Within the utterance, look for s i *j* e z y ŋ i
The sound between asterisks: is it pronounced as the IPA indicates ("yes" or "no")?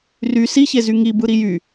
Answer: no